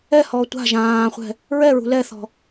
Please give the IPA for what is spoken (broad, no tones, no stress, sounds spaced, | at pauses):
ɛ h ɔː tʷ a̤ ʒ ãː χʷ ɛ̤ | ɹ ɛ ɹ ṳ l ɛ θ ɔ̤